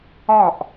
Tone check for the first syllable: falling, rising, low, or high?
falling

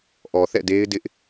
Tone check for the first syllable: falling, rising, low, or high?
low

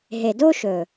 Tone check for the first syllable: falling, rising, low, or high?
low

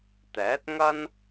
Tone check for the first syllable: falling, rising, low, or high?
rising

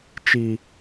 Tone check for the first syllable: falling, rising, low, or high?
high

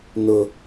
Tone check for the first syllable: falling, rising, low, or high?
high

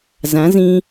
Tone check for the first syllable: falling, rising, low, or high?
rising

